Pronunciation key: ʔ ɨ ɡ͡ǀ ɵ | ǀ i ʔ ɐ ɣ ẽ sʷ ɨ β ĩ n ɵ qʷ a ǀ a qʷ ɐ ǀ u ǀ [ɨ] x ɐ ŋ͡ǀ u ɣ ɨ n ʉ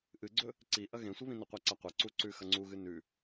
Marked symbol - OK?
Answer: no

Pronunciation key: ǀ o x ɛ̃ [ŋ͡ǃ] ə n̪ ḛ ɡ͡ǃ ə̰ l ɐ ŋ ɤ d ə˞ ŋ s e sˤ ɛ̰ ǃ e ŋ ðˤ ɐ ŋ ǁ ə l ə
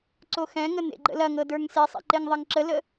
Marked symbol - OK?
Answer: no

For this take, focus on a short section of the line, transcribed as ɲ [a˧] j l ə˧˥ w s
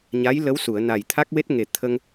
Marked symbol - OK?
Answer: no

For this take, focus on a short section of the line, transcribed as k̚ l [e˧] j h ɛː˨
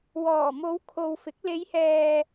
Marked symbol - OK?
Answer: no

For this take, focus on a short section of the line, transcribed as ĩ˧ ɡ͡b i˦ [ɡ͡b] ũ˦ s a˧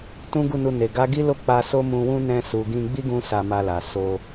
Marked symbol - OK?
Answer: no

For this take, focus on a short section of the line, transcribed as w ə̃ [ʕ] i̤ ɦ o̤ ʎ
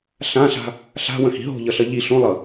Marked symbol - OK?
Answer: no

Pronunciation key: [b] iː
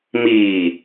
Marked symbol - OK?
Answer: no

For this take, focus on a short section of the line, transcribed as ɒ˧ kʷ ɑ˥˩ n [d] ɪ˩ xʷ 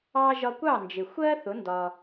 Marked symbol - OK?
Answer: no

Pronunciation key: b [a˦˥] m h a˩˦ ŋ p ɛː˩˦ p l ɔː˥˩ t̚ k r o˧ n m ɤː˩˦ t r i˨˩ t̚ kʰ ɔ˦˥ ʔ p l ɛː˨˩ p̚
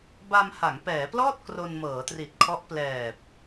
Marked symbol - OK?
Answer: no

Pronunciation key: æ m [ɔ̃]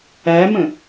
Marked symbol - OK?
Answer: no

